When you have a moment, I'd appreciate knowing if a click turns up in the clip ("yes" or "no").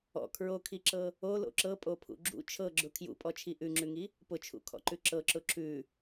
yes